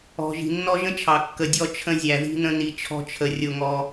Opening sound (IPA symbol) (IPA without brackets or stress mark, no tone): ɔ̤